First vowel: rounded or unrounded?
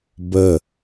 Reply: unrounded